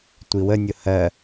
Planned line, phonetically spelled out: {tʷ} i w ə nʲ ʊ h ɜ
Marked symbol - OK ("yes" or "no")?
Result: yes